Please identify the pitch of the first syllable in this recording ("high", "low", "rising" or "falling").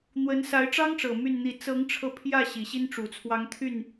rising